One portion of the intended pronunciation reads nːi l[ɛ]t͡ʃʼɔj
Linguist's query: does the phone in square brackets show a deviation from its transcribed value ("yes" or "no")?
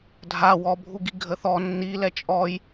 no